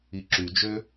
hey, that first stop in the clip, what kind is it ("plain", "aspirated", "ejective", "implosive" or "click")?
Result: click